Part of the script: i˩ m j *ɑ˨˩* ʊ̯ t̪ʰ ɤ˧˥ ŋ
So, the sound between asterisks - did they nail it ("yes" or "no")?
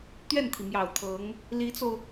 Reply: yes